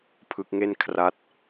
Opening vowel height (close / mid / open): close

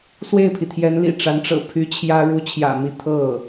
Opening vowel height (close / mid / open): mid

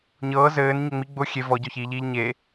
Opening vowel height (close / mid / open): mid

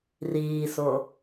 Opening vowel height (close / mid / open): close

